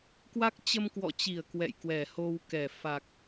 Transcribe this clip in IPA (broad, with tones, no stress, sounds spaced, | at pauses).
k w a˦˥ k̚ t͡ɕ ə˧ m k w ɔ̰˧˨ t͡ɕ i˧˩ ə̯ k w ɛ̰˧˨ j k w ɛ˧˩ h o˧ w k ɛ˧˩ f a˨˩ k̚